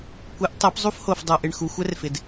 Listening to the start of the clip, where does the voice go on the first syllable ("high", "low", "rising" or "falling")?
rising